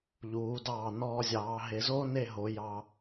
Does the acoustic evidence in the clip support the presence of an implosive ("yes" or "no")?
no